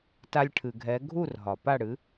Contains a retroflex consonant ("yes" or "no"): yes